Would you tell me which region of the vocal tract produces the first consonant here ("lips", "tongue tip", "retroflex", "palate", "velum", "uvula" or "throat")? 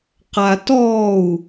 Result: uvula